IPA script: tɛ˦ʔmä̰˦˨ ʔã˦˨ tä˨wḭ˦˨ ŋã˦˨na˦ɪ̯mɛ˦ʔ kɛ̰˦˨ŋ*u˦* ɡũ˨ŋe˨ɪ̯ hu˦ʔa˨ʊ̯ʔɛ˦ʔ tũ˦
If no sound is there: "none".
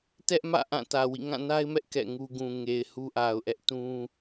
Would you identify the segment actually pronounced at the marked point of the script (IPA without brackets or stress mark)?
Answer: u˦